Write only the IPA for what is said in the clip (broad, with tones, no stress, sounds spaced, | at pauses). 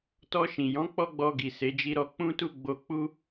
t ɔ˧ ʃ ĩ˨ j ɔ̃˨˦ k͡p ɔ˦ ɡ͡b ɔ˧ ɡ i˨ s e˨˦ d͡ʒ i˦ ɾ ɔ˦ k͡p ũ˦ t u˦ ɡ͡b o˧ k͡p u˦